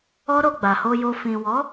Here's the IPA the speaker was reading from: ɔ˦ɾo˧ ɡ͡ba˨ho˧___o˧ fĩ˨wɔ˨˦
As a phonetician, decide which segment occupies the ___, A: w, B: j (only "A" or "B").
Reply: B